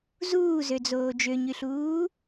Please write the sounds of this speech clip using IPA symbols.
z uː z ø d͡z oː d͡ʒ ø ɲ y ɬ uː

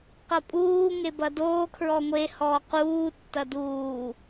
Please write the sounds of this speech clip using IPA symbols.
q ɐ pʼ uː ŋ e b ɐ d oː kʰ ɹ ɔ ŋʷ e h ɔː q uː tː ɐ d uː

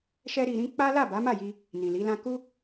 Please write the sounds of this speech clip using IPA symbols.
ʃ ɛ˦ ɾ i˧ ɾ ĩ˦ k͡p a˦ l a˦˨ b a˨˦ m a˦˨ j i˧ | n ĩ˨ l i˨˦ l ã˦ k u˦

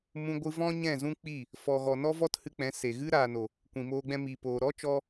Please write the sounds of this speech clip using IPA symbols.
m ũ˧ ɡʷ ɨ˧ v ɔ̃˦ ɲ ɛ̃˦˨ z ũ˦ k͡p i˦˨ | f ɔ˨ ɣ ɔ˨ n ɔ˦ v ɔ˦ t h ɨ˧ k͡p ɛ̃˨˦ s e˨ ɣ ɨ˦ ɾ aː˨ n o˨ | kʷ ĩ˨ m oː˧ ɡ͡b ɛ̃˧ m iː˨ p oː˨ ɾ ɔ˦ t͡ʃ ɔ˧

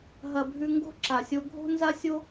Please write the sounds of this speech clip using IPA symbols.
ɦ ɐ˨ bʱ ʉ˧ ŋ ɡ o̤˦ ǁ a˨ sʲ o˧ ɡʱ o̤˦ n z a˦ sʲ o˦

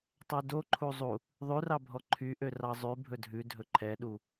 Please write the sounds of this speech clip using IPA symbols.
tˤ ɛ d o ǃʰ u zˤ u | ðˤ ʉ r ɑ bʱ ɔ ǃʰ y ʔ ø r ɑ zˤ ʉ bʱ ɵ dʱ ʉ dʱ ɵ ǃʰ ɛ ɗ u

